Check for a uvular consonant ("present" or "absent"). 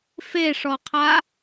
present